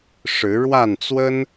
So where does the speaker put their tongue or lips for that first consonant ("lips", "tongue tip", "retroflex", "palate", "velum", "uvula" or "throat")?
retroflex